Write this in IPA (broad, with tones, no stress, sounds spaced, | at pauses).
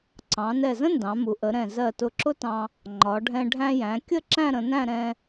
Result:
ǀ ɑ̃˩˧ n ɛ˧˩ z ə̃˥ n d ɑ̃˩˧ m u˩˧ ʔ ə˩˧ ɾ ɛ̃˧˩ z ɜ˧˩ t ʊ˧˩ ǁ ʊ˥ t ɑ̃˧ | ŋ͡ǃ ɒ˩˧ ɖʱ ɛ̃˧ ɖʱ æ̃˧ j æ̃˩˧ kʲ ə˥˧ ǁ æ̃˥˧ ɾ ə̃˩˧ n æ̃˥˧ ɾ ɛ̃˧